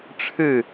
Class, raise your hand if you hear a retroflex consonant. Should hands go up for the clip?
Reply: yes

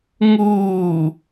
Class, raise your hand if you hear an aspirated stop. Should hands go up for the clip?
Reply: no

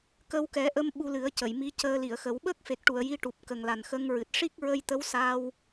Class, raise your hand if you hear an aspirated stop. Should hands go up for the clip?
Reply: no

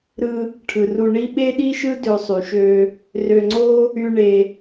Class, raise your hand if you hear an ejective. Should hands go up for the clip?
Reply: no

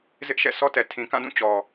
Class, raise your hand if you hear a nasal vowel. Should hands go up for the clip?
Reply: yes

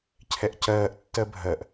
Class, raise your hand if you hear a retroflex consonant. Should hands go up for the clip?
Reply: no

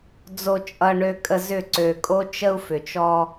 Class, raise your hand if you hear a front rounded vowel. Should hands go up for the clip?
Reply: yes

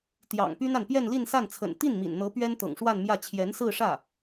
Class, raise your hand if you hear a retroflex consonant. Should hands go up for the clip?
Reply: yes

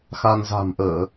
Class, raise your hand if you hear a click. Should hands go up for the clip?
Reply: no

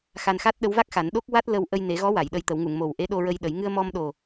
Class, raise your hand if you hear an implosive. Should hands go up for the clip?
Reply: yes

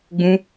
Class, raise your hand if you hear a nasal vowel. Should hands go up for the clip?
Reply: yes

